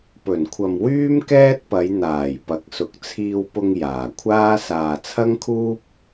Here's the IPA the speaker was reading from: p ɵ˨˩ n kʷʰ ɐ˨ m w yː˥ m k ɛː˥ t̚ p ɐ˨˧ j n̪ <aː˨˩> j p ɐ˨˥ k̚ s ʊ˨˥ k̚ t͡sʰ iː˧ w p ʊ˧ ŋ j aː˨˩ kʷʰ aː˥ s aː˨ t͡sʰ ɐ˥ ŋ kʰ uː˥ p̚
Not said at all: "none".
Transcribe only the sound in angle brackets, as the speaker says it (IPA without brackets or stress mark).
aː˨˩